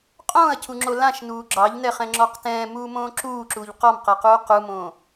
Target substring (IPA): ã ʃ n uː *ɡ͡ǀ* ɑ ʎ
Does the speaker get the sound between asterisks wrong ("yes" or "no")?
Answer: yes